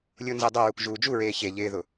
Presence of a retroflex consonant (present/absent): absent